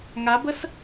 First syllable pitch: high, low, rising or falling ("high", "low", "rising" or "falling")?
rising